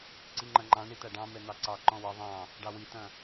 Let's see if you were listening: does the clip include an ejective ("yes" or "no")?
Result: no